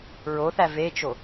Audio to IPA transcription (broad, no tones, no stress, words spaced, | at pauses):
ɹoθæ vet͡ʃo